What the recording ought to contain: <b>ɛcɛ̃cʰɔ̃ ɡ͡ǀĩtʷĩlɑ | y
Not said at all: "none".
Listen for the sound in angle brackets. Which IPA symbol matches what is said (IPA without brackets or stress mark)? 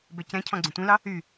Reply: b